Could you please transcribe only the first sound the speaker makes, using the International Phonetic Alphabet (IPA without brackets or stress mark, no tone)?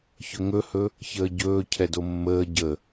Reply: ç